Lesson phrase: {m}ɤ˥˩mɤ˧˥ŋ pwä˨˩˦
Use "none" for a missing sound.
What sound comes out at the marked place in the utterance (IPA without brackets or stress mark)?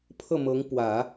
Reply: pʰ